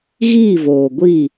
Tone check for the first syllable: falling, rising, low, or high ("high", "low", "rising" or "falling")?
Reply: falling